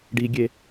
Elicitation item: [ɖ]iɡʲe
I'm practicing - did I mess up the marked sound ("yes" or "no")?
no